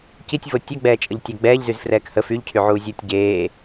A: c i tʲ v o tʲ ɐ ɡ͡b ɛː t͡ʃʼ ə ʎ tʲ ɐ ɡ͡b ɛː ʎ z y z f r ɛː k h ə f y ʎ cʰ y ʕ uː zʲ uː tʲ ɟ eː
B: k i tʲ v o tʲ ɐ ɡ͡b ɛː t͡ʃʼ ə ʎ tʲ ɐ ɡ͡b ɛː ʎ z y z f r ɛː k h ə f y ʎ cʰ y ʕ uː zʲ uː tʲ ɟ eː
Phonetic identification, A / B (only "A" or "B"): A